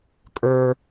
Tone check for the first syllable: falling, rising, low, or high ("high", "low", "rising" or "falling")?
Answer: high